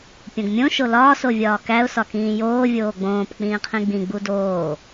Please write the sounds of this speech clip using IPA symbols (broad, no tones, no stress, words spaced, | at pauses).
pʲõɡmʲõ ʃolɒːs ovʲɒːkæʊ̯ sɒkĩːjoː vʲoːɡ͡bõːp k͡pĩːqʰĩɡ͡bĩ ɡ͡budoː